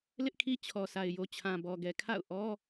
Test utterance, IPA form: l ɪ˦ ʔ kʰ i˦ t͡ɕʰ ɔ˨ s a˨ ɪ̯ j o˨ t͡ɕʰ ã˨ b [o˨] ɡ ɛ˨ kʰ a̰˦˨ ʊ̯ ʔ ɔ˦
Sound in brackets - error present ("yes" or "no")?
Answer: yes